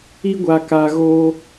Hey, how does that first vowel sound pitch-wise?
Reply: high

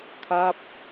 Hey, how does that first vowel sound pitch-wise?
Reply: falling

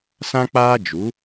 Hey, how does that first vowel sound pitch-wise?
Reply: high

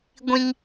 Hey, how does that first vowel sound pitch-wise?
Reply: high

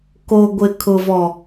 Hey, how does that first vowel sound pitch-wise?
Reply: low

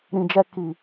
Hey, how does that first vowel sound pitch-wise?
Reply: low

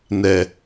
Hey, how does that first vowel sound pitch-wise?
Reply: low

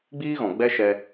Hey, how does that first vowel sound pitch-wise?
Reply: high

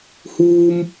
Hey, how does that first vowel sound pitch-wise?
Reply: high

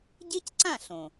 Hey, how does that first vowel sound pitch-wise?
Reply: high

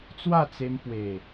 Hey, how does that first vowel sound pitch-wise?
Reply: falling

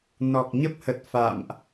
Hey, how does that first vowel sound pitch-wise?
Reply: low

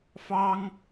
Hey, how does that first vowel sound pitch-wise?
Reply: high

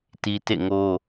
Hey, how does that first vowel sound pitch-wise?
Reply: high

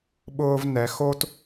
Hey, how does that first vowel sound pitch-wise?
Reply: high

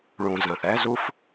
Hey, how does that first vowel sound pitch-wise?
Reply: low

